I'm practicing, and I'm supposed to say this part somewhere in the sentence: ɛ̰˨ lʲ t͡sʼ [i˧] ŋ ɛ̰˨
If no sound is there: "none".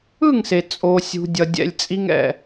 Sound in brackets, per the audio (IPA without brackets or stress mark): i˧